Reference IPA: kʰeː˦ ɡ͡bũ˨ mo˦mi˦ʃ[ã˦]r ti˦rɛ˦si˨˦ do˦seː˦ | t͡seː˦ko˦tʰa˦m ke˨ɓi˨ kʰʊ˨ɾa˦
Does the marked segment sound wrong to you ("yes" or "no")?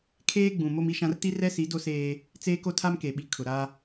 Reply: no